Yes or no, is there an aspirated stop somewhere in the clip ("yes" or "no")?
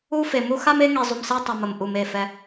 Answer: no